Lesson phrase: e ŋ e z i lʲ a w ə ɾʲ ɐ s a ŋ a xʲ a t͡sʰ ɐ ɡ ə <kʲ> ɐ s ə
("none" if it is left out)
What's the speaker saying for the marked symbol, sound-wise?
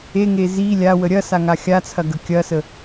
kʲ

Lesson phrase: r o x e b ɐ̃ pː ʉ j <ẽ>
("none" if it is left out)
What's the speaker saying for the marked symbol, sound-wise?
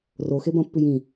ĩ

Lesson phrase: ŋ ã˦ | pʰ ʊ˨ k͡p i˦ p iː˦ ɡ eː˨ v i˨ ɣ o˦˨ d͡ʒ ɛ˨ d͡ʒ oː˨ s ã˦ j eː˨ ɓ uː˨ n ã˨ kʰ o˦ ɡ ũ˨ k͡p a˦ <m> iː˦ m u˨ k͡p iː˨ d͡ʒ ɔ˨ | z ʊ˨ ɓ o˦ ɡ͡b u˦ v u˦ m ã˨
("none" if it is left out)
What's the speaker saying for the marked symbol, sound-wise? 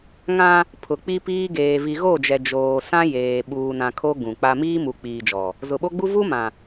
m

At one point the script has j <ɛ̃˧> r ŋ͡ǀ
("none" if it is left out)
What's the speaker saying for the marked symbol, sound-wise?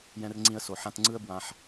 ɛ̃˧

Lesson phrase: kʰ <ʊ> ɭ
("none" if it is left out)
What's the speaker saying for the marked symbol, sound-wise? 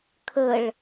ə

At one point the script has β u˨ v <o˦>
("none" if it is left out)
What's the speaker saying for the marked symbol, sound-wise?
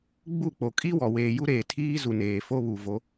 o˨˦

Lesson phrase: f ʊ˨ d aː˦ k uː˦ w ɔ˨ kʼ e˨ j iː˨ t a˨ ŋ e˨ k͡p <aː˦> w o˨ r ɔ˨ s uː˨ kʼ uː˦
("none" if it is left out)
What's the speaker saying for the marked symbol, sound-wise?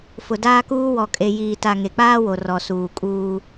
aː˦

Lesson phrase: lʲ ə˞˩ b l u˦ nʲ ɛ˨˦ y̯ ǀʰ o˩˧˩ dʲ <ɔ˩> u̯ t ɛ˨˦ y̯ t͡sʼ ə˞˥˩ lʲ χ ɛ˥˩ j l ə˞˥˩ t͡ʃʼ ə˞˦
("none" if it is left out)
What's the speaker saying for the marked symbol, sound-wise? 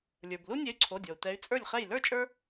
ɔ˩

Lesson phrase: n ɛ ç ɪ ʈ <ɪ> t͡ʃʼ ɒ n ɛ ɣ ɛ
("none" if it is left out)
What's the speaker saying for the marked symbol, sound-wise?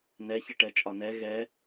ɛ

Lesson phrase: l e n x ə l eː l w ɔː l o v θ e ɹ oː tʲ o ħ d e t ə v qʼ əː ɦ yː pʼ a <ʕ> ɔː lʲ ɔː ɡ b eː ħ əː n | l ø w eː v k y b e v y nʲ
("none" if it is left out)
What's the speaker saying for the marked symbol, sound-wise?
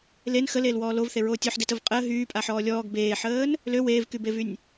ħ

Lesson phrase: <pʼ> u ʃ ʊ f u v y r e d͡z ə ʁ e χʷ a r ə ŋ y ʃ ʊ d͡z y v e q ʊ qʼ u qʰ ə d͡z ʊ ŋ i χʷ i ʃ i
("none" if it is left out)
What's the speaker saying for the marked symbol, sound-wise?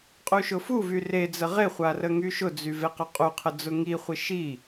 qʼ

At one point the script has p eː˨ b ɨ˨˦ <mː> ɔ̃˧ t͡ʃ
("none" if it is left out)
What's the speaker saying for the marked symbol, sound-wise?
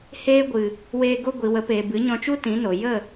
ɲ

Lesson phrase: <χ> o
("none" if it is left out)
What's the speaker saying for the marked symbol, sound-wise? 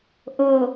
ʔ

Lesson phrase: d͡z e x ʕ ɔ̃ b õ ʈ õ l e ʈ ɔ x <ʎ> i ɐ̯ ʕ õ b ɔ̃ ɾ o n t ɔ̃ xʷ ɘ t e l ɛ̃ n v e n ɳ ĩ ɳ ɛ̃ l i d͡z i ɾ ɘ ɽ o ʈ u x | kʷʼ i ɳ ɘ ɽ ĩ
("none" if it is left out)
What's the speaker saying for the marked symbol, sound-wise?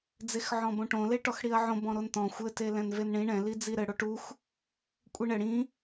ɽ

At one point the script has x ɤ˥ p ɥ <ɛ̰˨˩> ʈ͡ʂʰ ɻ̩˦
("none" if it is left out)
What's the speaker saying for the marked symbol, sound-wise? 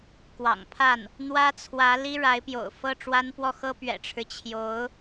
ɛ̰˨˩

